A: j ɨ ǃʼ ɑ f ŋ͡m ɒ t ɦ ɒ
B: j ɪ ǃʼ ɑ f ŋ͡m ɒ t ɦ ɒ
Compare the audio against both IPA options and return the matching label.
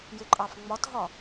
B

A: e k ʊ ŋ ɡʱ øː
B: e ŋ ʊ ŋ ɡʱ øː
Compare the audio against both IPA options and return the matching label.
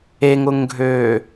B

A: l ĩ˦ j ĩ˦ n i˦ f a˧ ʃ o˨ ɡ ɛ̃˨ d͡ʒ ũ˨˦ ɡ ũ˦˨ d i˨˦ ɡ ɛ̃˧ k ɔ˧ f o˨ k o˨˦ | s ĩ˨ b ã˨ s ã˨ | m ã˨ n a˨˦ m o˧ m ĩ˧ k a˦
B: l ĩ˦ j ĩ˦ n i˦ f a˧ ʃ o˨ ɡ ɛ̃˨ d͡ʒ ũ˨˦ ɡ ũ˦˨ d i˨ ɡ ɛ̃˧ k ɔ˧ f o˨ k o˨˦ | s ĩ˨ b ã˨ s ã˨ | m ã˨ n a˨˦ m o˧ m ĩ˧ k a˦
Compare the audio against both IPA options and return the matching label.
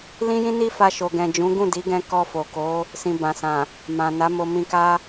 A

